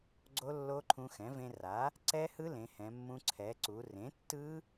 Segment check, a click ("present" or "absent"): present